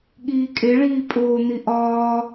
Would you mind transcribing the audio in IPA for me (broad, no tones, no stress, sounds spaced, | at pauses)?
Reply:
ɠ iː kʼ e ɭ iː pʼ oː n̪ i ʔ ɒː